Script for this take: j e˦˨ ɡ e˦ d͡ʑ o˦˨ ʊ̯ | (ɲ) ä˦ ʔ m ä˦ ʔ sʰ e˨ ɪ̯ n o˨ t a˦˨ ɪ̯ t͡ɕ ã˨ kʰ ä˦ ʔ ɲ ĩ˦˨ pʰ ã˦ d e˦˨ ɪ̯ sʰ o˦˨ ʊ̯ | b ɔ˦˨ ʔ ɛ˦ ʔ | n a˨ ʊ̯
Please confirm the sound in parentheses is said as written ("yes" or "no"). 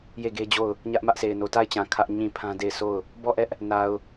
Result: yes